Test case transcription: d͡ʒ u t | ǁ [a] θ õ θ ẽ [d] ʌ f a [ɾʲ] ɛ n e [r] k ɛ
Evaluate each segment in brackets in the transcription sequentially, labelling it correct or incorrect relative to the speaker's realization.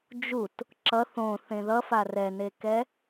incorrect, incorrect, incorrect, incorrect

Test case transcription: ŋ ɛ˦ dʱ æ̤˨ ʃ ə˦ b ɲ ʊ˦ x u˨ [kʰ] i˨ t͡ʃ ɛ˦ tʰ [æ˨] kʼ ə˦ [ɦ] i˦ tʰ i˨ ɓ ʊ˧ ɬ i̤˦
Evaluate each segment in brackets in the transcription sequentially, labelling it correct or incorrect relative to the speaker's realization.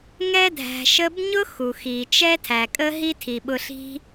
incorrect, correct, correct

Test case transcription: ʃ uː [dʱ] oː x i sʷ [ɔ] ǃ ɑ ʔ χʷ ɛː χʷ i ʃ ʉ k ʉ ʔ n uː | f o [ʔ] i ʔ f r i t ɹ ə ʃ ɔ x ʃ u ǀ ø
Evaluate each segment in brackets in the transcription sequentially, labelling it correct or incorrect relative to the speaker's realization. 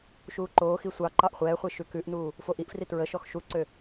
incorrect, incorrect, correct

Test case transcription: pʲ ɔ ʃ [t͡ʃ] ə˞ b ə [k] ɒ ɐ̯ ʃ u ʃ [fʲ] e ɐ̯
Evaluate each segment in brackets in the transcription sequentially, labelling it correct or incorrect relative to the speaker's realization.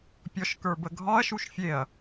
incorrect, incorrect, correct

